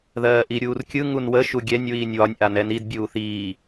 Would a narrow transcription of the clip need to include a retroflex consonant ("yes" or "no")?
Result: no